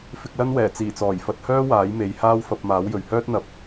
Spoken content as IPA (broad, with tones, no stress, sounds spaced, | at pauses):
f ɪ˧ k̚ l ɐ˥ n w ɛː˨˩ t͡s iː˨˩ t͡s ɔː˨˩ j f ɐ˧ t̚ h œː˥ w aː˨˥ j m e˨˧ j h aː˥ w f ɐ˧ p̚ m aː˨˥ w j ɵ˨ ɥ h œː˥ t̚ n̪ ɐ˧ p̚